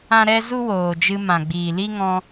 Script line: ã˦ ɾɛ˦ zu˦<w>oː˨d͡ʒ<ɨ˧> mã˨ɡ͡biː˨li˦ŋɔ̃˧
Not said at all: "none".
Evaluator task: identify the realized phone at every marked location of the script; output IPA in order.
w, ɨ˧

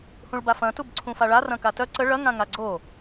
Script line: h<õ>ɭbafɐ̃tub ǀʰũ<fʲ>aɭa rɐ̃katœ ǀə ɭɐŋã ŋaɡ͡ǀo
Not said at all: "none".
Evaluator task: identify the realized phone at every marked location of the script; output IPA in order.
ũ, f

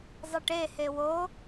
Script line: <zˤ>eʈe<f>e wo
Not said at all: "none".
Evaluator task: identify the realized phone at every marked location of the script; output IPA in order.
zˤ, h

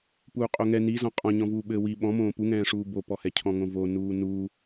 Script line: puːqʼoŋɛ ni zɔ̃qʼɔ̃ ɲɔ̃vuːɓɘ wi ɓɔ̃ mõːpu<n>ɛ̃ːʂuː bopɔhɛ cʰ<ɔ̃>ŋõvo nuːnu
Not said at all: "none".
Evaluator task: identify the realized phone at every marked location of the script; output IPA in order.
ŋ, ɔ̃

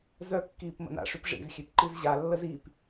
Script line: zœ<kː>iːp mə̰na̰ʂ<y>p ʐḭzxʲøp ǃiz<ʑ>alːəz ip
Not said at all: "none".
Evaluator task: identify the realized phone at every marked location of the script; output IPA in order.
kː, y, ʑ

